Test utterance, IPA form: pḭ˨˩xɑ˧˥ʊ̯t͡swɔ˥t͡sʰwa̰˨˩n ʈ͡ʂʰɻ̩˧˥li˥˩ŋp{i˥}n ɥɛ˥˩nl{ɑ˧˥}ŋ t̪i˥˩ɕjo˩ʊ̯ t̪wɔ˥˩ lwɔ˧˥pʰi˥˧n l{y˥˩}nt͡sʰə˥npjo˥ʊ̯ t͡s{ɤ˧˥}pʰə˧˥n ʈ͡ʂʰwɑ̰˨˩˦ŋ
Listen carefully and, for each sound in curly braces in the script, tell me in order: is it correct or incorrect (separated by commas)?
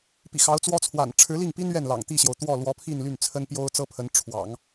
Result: correct, incorrect, correct, incorrect